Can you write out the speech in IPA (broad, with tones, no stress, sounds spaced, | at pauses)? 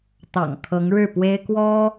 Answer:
t̪ ɑ̰˨˩ ŋ kʰ ɤ˧˥ ŋ ɻ ɻ̩˥˩ p w e˥ ɪ̯ k w ɔ˥